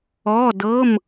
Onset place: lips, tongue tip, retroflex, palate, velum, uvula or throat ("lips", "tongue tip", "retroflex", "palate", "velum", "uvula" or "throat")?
tongue tip